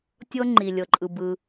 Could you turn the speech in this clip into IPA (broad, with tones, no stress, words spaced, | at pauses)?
tʲɤ˥ ŋ͡ǃi˩lʲɤ˩ǃʼɯ˩ bɯ˩